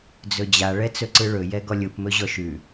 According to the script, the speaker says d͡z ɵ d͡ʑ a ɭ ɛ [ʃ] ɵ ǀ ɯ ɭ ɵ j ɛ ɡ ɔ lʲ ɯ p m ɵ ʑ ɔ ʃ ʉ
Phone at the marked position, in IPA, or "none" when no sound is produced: t͡s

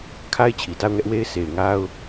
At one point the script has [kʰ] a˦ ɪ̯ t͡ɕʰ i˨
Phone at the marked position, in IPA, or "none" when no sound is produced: kʰ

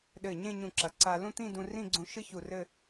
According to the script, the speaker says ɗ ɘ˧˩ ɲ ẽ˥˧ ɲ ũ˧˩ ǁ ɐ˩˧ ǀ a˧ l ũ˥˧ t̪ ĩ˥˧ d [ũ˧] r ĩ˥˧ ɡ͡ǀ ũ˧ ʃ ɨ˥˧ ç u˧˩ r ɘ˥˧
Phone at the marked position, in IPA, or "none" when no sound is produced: ũ˧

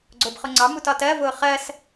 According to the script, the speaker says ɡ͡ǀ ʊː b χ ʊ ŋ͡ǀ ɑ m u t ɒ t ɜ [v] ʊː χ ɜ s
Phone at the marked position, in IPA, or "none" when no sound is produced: v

